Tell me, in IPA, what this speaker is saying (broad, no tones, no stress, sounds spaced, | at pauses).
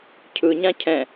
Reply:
cʰ ɯ ɲ ã cʰ ɛ̃